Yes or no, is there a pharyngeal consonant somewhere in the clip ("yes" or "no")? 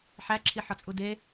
yes